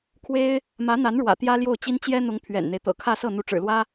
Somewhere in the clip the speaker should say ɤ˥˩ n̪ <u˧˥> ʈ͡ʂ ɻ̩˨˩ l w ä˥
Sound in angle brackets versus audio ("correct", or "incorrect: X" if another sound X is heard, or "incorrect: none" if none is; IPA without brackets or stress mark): correct